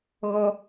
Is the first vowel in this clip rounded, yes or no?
yes